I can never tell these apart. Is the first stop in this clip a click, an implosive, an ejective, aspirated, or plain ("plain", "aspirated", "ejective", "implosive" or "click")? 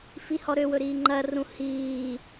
click